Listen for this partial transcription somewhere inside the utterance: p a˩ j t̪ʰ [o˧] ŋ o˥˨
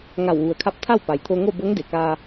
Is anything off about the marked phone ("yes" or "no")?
no